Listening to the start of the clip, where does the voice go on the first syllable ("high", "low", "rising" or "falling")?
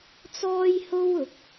high